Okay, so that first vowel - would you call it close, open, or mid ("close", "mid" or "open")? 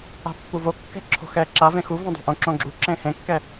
open